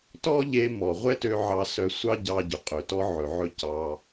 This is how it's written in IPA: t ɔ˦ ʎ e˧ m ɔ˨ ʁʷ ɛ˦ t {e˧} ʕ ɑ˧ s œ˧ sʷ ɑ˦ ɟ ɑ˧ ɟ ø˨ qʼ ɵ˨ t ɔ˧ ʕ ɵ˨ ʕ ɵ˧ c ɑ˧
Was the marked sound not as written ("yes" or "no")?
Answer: yes